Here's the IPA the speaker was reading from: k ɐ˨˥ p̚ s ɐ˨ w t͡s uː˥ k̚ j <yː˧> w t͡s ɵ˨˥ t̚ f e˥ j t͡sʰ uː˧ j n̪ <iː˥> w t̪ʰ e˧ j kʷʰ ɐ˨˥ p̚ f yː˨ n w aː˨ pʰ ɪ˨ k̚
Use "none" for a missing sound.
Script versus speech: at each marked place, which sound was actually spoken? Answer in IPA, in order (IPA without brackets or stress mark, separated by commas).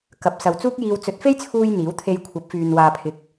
iː˧, iː˨˥